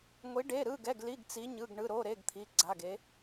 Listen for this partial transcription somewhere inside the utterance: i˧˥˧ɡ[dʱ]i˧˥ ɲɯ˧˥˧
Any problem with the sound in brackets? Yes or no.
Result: yes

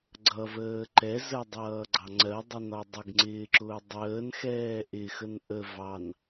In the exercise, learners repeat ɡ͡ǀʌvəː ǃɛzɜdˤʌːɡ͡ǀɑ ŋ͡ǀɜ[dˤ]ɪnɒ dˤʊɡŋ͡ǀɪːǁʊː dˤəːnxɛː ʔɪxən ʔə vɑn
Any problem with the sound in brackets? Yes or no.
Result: no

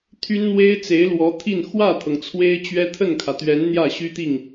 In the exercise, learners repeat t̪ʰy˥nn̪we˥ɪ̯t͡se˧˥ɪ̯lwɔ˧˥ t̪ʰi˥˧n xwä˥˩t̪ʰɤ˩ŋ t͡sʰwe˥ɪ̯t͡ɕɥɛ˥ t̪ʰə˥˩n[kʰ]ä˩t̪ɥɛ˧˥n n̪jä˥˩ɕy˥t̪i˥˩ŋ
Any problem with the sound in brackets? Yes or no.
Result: no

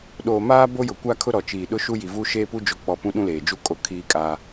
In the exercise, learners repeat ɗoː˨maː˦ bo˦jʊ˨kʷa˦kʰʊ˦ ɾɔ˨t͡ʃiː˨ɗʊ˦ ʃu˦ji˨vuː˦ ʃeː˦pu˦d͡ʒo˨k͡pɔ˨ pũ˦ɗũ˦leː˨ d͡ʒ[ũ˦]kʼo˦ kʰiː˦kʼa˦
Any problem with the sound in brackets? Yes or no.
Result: yes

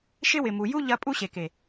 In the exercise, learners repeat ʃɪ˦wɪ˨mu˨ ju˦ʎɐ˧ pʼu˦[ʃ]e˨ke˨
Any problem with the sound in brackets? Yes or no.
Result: yes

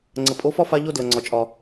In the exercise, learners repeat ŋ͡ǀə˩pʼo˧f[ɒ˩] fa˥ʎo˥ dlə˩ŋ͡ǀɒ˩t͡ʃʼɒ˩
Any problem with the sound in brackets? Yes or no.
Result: yes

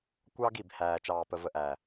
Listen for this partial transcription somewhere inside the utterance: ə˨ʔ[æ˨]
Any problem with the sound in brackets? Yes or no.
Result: no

